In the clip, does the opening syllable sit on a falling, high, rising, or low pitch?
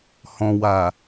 low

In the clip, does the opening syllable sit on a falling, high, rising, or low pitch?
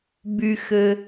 low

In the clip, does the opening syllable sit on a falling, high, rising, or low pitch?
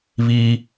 high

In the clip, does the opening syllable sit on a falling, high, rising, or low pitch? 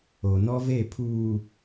low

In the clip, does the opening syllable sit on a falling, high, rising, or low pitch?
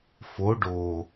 rising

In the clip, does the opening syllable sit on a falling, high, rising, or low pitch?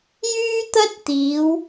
high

